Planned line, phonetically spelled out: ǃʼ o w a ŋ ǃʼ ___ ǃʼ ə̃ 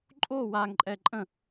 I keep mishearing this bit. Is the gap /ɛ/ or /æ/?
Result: ɛ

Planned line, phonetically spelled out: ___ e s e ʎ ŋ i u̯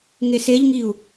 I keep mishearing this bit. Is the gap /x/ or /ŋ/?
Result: ŋ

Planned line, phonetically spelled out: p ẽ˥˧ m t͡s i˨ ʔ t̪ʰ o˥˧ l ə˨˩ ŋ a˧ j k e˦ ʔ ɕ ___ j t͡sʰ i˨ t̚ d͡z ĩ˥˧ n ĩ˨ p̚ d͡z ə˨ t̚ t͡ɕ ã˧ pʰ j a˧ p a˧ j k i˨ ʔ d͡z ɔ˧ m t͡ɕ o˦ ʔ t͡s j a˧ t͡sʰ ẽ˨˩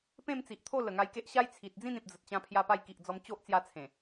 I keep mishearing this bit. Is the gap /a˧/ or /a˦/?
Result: a˦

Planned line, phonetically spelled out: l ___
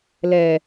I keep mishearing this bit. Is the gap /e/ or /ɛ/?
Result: ɛ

